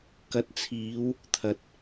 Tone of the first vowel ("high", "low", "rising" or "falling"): rising